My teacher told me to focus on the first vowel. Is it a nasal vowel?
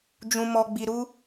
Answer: yes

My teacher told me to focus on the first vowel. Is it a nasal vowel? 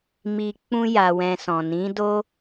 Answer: no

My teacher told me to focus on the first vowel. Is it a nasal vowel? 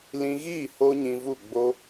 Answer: yes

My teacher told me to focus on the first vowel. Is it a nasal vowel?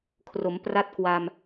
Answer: no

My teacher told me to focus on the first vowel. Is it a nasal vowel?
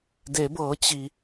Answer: no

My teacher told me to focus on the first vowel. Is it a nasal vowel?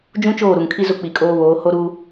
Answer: yes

